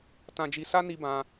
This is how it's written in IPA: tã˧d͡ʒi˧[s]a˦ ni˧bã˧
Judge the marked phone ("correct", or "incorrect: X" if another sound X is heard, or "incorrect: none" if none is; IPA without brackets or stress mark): correct